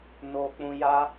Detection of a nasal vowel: present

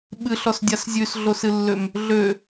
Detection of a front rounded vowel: present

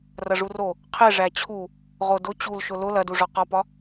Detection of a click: absent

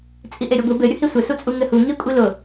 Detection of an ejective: present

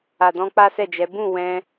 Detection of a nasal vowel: present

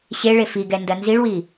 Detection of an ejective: absent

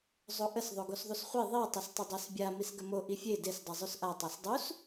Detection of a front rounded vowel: absent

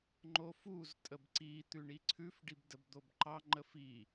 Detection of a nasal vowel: absent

